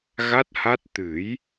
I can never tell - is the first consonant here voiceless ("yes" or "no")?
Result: no